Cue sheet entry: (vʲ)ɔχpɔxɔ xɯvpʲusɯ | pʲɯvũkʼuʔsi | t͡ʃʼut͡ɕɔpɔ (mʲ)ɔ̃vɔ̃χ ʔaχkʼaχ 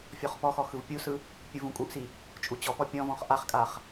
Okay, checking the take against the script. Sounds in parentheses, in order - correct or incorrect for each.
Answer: incorrect: fʲ, incorrect: pʲ

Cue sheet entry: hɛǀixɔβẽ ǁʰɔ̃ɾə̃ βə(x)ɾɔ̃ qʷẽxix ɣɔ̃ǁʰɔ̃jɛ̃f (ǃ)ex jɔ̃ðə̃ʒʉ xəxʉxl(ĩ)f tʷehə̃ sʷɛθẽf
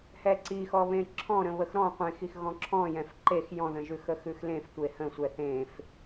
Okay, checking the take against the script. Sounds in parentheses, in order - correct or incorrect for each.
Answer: correct, correct, incorrect: ẽ

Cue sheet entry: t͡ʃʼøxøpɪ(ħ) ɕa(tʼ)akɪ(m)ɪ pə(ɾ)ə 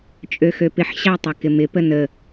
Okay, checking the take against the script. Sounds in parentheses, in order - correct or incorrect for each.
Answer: correct, incorrect: tˤ, correct, incorrect: n

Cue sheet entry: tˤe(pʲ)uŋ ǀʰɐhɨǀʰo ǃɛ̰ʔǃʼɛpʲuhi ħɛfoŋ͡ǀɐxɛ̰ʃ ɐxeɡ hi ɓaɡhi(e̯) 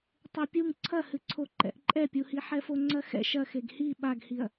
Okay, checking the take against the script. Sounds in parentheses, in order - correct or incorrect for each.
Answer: correct, incorrect: ɐ̯

